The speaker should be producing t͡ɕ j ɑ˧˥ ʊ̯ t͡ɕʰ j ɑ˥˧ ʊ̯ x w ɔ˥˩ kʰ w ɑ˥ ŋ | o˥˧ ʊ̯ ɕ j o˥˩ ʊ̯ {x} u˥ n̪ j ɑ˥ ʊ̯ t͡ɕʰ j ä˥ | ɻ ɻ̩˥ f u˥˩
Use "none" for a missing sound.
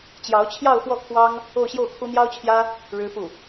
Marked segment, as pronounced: kʰ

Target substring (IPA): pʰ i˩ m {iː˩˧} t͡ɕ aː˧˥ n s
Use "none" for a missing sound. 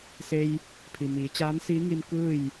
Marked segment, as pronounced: iː˩˧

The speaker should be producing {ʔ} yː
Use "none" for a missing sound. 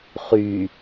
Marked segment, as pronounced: χ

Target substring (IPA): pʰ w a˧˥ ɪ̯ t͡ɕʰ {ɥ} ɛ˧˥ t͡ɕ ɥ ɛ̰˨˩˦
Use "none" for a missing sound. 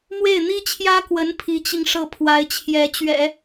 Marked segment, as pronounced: j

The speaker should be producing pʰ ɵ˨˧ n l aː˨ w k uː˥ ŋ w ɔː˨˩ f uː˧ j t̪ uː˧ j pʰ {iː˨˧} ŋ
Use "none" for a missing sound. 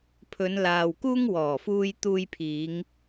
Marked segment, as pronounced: iː˨˧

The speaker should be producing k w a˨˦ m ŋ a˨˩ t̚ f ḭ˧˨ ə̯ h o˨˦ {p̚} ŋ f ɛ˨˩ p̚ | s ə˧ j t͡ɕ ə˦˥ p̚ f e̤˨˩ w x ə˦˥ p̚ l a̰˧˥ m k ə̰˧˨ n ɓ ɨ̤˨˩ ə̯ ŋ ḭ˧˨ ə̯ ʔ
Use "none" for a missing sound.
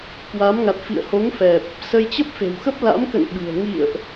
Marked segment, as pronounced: none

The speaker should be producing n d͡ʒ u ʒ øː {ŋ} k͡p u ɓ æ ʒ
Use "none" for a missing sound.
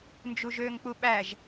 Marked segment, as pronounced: ŋ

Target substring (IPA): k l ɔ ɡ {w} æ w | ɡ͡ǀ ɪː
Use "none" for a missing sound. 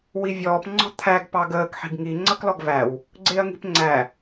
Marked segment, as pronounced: v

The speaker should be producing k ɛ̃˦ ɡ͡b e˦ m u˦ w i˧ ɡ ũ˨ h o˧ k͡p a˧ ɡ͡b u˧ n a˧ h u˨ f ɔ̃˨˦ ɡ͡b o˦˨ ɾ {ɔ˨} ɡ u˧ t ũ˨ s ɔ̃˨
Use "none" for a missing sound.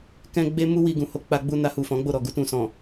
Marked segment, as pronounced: ɔ˨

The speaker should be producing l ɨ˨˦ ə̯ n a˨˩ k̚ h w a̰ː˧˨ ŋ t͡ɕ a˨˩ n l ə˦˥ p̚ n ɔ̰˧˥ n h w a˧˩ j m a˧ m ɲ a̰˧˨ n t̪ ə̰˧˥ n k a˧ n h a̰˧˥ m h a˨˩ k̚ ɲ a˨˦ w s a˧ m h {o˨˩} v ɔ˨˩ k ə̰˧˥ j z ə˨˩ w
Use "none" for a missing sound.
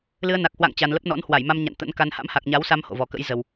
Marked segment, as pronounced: o̰˧˨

